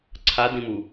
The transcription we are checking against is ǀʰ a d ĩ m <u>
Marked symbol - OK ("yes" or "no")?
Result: yes